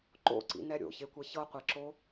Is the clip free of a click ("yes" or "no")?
no